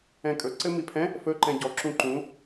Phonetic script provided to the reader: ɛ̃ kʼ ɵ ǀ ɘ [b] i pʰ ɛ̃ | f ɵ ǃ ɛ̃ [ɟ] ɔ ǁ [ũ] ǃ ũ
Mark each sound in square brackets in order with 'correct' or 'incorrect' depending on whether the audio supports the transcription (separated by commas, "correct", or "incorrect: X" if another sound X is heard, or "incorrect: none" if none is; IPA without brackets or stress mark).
incorrect: m, correct, correct